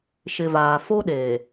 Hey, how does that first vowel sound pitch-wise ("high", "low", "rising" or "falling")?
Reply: low